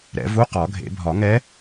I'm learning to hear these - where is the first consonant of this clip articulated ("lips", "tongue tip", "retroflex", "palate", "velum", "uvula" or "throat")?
tongue tip